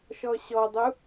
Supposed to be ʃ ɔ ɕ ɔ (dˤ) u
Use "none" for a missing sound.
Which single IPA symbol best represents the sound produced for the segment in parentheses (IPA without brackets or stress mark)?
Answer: dˤ